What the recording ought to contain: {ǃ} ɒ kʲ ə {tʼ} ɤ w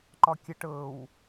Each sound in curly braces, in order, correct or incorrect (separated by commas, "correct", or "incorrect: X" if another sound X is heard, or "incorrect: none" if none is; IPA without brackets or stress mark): correct, incorrect: ʈ